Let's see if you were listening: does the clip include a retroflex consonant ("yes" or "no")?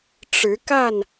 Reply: yes